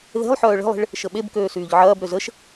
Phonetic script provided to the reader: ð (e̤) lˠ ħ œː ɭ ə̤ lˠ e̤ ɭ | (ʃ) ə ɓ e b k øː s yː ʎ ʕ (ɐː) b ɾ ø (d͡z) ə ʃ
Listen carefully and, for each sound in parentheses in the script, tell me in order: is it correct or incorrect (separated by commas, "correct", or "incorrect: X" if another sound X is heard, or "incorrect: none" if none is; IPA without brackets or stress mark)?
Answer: correct, correct, correct, incorrect: z